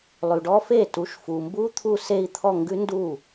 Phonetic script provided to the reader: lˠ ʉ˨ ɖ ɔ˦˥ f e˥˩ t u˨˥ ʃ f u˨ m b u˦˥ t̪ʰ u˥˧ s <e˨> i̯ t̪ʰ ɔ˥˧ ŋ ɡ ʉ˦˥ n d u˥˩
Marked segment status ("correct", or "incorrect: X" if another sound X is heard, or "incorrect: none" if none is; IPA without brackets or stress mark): incorrect: e˥˧